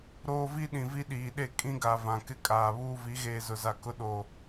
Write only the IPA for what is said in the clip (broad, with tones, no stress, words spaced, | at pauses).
ɾoː˦vi˦ ɗĩ˨vi˦ɗiː˨ɗe˦˨ kʼĩ˦ɡa˨ vã˨kɪ˦ kʼaː˨βuː˦ vi˨˦ɣeː˨zʊ˨za˨ kʊ˦ɗo˨